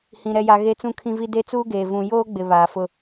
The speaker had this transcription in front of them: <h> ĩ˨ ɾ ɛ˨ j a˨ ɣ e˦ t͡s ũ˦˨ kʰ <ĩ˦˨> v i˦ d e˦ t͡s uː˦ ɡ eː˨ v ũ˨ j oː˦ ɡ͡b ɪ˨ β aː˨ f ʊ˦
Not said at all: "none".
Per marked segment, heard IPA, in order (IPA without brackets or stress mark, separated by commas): h, ĩ˦